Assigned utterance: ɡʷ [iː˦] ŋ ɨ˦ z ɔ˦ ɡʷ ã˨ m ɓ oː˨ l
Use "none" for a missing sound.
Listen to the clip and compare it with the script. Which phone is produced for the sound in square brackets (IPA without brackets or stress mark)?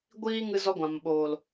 iː˧